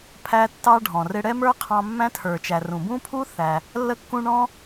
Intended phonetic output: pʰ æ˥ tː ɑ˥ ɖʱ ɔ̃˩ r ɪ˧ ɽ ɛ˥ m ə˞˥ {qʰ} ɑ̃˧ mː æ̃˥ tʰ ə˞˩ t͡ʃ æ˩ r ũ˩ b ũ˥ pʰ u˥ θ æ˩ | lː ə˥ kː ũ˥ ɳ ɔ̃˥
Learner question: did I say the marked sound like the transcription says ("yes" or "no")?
yes